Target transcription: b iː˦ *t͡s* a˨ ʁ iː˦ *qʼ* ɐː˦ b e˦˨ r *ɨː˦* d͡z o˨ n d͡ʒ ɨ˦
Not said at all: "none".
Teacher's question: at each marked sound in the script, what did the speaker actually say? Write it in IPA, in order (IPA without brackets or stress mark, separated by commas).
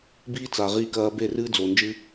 t͡s, k, ɨː˦